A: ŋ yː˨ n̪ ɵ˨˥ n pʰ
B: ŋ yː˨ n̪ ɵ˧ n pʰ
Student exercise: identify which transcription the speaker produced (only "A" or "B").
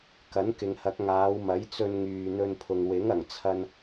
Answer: B